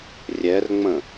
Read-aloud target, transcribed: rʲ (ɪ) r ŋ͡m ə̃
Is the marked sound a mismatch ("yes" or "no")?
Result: yes